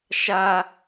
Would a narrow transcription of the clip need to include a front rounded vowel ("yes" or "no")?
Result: no